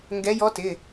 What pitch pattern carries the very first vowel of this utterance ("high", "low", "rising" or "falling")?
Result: rising